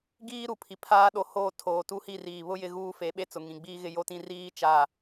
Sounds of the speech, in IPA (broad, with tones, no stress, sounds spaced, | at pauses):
ɡ iː˦ ɾ u˨ pʰ i˨ pʰ aː˦ ɗ o˨˦ h oː˦˨ tʰ oː˨ t u˦ h i˦˨ r iː˨ β ʊ˦ j ɪ˦ ɣ uː˦ f e˨˦ ɓ e˦ t͡s ʊ˨ ŋ ĩ˨ ɡ͡b iː˦ ɣ ɪ˦ j o˦ t ĩ˦ r iː˦ t͡ʃ a˦˨